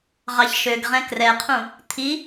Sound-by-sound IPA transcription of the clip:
ʁ ɑ ç ʃ ø ɡ ʁ ɛ̃ k r ɛ qʰ ũ | t̪ʰ i

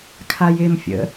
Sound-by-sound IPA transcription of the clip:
kʰ a j ɪ m fʲ ə̰

